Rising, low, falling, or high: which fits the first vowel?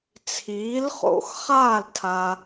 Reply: rising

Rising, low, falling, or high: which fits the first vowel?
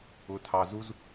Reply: low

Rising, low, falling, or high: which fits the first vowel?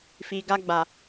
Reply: low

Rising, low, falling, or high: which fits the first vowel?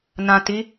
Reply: low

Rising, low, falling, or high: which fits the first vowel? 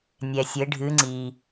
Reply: low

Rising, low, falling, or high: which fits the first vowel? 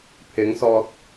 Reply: rising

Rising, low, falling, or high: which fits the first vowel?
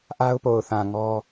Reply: high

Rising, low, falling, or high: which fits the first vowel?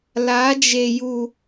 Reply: rising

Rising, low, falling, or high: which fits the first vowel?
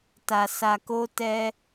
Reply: low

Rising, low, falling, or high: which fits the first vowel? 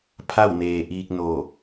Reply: falling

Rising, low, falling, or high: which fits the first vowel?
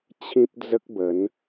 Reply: high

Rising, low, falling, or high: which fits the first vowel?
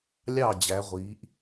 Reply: falling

